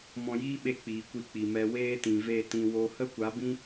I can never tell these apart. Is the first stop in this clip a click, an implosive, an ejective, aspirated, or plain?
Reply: implosive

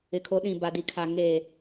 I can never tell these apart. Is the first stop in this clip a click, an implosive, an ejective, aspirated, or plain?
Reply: aspirated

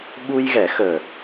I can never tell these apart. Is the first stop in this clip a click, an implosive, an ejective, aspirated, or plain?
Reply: implosive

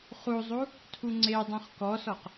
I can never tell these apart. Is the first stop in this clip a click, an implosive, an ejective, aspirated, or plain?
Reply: aspirated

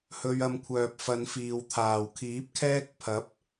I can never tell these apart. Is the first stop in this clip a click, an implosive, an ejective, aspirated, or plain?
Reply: aspirated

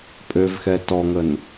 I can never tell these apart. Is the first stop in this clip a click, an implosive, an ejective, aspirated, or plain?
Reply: ejective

